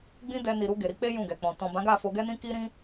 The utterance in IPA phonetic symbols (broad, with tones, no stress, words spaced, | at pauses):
ɡ͡bĩ˦dɛ˧ni˨ɾu˧ ɡe˨ɾi˨˦k͡pe˦ jũ˦˨ɡɛ˨k͡pɔ̃˨ tɔ̃˨bã˨˦ɡa˦˨ fo˧ɡɛ˦nĩ˦ ki˦ɾĩ˦